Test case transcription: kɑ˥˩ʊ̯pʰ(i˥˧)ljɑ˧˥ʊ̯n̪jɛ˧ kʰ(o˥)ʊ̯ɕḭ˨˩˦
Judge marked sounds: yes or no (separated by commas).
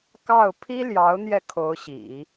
no, no